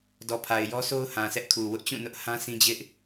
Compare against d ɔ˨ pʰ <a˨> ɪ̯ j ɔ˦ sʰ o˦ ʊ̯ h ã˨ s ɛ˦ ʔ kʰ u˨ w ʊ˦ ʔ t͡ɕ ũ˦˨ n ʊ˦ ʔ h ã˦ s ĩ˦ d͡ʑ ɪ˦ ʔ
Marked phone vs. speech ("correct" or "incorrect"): correct